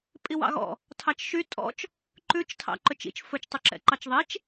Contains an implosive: no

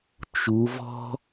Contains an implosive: no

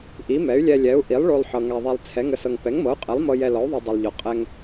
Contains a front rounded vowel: yes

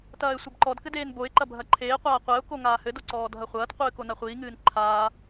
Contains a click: yes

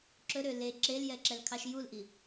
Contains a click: yes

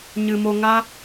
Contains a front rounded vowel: no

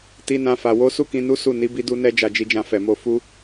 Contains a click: no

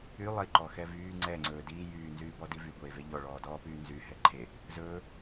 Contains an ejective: no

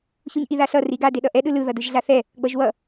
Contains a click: no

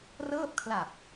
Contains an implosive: no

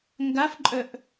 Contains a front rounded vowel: yes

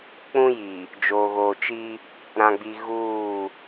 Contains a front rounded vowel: no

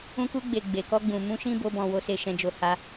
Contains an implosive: no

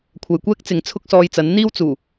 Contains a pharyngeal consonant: no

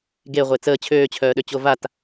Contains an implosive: yes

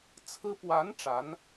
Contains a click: no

